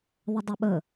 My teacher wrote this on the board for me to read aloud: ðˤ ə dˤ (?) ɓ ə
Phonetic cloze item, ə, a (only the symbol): ə